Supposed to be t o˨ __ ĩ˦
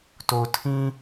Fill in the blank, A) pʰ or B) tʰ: B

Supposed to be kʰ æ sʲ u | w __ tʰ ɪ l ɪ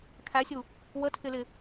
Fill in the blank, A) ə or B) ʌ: A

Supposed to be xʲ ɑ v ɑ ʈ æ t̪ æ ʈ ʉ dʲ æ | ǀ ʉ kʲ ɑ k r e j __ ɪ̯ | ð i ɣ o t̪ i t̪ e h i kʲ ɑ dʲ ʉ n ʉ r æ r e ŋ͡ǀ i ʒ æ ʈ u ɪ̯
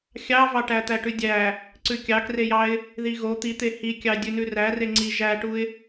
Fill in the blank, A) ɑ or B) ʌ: A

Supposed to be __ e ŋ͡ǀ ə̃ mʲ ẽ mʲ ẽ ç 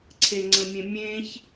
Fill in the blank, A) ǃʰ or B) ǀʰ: B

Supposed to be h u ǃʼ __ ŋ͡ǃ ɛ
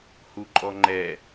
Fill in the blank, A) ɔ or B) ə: A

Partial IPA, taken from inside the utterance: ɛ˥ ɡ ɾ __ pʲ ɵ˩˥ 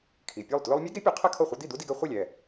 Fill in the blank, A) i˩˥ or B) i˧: A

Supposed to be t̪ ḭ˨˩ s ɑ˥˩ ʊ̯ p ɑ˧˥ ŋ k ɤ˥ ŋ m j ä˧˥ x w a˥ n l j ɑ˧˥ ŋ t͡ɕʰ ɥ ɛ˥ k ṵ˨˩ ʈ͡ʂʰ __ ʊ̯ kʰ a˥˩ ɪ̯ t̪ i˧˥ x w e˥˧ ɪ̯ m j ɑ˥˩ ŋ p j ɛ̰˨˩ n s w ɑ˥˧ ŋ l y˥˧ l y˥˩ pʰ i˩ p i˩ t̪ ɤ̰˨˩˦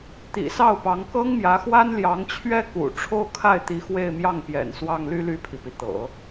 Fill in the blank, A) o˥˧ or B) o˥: A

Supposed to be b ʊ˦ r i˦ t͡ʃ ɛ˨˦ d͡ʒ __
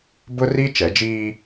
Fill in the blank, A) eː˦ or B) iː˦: B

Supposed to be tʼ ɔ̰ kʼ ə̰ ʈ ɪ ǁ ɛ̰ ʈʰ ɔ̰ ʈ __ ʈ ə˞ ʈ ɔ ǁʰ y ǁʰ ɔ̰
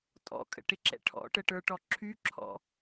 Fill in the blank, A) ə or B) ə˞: A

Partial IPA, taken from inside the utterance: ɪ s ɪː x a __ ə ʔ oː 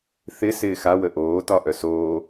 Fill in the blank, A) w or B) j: A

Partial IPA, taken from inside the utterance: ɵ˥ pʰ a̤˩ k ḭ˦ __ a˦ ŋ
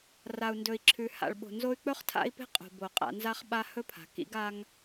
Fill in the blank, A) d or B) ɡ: B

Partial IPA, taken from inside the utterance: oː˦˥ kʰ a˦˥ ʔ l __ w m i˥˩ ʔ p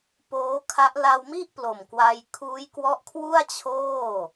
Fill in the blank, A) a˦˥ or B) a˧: B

